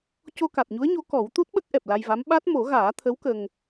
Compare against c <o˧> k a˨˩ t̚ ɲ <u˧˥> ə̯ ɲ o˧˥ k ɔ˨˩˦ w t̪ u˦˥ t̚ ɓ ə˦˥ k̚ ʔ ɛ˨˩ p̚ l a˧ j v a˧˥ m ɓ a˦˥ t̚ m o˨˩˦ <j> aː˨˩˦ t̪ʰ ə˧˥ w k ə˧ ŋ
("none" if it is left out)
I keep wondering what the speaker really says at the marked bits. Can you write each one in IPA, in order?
o˧, u˧˥, ɣ

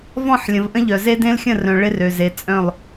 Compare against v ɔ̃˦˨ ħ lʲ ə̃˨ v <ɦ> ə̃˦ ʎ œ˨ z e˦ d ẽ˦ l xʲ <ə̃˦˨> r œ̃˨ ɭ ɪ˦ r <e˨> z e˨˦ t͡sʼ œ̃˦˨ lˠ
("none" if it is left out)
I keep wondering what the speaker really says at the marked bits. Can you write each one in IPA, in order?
ʔ, ə̃˦˨, ø˨

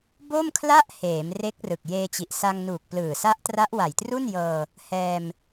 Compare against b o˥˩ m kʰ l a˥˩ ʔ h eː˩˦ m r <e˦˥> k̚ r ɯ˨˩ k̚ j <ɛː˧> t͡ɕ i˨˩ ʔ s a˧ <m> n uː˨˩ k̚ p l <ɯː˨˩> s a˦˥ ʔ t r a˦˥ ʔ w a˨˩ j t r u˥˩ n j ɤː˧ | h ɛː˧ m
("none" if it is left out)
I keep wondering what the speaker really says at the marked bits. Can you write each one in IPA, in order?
e˦˥, eː˧, ŋ, ɯː˨˩

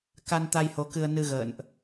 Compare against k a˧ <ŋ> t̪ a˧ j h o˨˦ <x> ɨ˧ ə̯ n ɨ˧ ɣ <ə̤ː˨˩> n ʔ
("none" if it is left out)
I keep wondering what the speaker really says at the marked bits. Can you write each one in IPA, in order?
n, k, ə̰ː˧˨

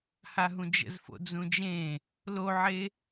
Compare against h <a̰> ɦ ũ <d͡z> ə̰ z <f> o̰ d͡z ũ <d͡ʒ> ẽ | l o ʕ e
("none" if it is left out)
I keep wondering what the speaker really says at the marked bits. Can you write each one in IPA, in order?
a, d͡ʒ, f, d͡ʒ

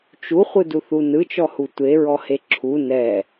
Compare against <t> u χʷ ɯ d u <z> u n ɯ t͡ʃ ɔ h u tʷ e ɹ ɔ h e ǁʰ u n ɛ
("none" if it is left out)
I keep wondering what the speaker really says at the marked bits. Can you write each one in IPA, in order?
t͡ʃ, θ

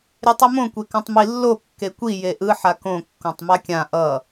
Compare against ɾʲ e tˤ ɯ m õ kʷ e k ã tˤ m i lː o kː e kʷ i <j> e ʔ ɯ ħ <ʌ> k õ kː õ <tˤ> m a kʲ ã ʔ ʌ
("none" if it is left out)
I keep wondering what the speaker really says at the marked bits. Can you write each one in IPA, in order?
j, a, tˤ

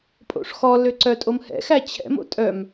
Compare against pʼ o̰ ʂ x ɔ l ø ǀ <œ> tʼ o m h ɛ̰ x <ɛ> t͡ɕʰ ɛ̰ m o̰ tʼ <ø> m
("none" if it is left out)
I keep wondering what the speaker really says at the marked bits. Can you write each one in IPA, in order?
œ, æ, œ

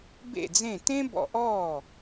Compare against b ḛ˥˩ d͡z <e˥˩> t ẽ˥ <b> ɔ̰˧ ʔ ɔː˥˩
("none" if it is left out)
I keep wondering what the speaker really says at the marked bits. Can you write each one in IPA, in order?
ẽ˥˩, b

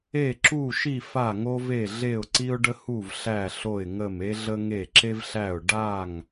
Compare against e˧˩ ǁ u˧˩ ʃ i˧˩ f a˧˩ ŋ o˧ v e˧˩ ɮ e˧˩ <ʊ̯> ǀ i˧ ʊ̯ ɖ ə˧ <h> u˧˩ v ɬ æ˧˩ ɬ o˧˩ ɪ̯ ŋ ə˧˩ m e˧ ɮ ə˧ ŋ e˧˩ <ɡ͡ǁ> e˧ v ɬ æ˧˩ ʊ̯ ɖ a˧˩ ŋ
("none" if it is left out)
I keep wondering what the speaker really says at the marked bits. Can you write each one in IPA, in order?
ʊ̯, h, ǁ

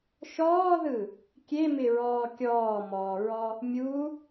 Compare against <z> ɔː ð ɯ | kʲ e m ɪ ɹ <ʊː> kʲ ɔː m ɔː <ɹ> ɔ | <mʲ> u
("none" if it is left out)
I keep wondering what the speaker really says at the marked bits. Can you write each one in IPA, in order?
ʃ, ɔː, ɹ, mʲ

